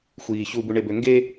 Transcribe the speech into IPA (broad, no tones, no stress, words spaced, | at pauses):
xʷiː çubuɳebø ŋɡe